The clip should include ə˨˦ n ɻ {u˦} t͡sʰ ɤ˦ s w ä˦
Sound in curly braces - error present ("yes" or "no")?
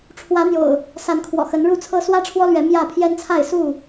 yes